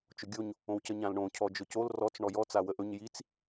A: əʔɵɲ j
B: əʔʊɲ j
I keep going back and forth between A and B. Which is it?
A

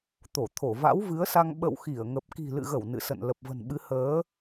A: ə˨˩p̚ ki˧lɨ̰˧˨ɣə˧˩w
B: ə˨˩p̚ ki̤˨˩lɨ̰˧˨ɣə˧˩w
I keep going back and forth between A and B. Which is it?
B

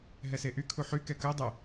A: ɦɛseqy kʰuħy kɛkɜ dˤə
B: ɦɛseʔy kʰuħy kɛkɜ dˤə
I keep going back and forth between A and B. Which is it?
B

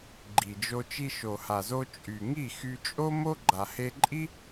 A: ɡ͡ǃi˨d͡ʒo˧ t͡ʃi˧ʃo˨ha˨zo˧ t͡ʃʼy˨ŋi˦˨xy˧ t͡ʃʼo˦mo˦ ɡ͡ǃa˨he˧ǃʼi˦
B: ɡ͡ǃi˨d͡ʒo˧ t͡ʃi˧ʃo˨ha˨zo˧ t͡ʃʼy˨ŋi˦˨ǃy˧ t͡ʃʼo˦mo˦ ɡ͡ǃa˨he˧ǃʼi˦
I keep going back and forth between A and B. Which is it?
A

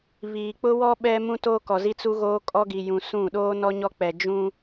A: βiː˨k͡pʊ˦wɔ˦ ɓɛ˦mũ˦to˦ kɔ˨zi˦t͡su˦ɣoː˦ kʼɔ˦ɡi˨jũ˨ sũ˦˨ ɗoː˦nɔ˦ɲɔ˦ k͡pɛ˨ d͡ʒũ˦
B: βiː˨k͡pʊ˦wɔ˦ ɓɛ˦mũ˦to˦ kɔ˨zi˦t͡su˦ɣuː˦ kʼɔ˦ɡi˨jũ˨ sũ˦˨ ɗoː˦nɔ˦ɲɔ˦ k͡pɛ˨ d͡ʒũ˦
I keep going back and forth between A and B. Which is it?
A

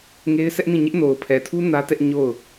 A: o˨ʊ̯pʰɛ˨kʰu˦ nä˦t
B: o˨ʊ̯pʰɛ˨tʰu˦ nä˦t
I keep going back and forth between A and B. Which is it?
B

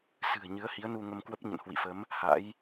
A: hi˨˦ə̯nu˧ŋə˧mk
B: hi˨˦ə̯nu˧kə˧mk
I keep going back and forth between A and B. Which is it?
A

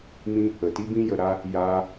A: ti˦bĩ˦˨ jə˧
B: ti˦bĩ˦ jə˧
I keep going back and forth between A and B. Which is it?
B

